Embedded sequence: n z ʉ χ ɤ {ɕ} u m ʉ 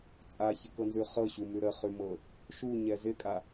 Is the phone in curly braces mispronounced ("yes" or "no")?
no